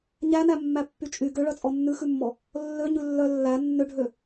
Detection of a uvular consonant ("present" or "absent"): absent